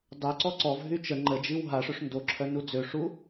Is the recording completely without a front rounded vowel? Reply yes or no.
no